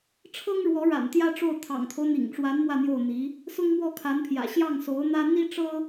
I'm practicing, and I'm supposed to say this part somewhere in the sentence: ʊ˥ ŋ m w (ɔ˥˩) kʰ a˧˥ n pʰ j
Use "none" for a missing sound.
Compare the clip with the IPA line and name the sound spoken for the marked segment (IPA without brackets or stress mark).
ɔ˥˩